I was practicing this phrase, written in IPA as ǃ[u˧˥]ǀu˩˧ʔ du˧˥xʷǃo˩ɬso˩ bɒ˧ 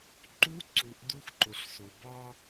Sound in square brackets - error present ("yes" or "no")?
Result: no